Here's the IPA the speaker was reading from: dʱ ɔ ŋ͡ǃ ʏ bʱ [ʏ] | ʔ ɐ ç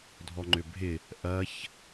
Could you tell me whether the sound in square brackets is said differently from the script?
yes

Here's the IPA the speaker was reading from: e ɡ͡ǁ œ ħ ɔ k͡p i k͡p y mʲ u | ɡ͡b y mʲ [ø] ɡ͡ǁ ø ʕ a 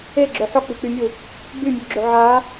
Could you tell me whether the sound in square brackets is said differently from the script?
yes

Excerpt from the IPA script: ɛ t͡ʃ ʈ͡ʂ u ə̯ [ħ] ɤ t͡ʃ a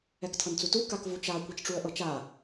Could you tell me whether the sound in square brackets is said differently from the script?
yes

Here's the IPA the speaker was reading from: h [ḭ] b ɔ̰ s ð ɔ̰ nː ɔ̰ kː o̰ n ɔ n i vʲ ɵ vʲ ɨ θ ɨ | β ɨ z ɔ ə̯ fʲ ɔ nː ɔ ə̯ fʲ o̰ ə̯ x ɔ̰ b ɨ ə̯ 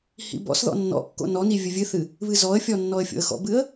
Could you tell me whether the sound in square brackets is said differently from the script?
no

